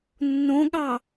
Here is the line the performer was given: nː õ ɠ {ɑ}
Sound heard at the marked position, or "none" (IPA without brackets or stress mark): ɑ